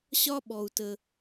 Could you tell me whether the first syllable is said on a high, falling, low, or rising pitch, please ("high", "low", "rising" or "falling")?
high